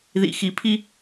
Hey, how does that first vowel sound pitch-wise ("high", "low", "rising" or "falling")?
low